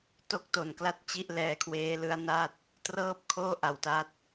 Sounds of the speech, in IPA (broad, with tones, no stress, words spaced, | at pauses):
to˥˩k̚to˨˩nkla˥˩t̚ t͡ɕi˥˩ʔlɛː˦˥kʰweː˦˥ lɯ˦˥a̯na˥˩t̚ | trɤː˥˩p̚kʰoː˥˩ʔa˨˩wta˦˥t̚